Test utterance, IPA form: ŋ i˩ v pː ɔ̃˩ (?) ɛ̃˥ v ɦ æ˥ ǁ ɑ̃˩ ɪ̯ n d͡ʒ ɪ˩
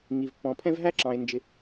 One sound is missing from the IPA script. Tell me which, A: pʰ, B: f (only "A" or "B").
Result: A